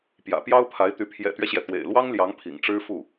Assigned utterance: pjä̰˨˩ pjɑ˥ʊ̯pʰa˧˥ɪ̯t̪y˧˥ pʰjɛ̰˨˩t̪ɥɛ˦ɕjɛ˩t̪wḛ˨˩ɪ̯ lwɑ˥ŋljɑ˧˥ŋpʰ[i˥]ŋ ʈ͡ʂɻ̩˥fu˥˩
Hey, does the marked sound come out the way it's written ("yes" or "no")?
no